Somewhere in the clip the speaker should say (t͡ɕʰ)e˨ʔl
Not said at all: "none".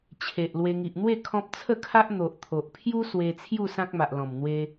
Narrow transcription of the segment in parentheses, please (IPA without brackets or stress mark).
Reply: t͡ɕʰ